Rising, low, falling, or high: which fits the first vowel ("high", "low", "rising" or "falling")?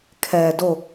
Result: low